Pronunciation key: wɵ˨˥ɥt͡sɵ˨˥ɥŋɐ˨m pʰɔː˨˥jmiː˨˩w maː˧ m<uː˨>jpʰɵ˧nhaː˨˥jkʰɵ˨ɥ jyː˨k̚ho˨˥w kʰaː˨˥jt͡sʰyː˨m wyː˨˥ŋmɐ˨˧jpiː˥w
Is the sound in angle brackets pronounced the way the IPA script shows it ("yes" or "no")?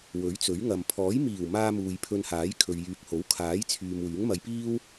yes